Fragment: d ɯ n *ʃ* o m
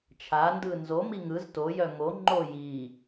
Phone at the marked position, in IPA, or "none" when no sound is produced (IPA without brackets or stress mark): z